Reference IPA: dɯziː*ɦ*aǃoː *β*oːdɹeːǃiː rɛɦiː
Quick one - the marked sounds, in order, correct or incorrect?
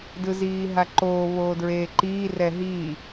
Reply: correct, correct

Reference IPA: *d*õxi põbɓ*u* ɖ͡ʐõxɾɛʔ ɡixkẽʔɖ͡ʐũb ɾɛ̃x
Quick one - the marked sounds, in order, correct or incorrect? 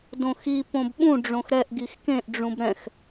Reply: correct, incorrect: ũ

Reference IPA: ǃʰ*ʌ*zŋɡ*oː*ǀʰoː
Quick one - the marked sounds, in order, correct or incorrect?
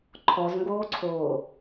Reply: incorrect: ɔ, correct

